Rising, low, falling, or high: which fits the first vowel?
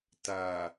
low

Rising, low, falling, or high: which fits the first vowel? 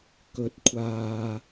rising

